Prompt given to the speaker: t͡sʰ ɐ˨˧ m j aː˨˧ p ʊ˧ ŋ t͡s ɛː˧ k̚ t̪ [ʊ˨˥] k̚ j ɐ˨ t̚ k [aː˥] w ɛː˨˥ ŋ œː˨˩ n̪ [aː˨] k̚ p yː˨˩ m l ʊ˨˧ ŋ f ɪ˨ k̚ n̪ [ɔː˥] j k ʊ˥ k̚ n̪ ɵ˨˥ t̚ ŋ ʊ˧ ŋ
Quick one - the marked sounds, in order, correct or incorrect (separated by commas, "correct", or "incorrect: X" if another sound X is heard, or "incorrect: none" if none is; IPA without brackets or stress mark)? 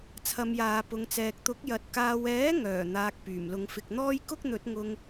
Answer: correct, incorrect: aː˨, correct, correct